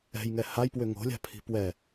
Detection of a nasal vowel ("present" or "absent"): absent